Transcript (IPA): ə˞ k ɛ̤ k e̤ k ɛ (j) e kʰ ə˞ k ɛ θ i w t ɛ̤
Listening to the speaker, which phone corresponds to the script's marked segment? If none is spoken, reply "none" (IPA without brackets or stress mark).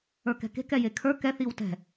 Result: j